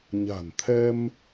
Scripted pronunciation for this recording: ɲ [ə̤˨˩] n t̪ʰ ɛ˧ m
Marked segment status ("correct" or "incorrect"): incorrect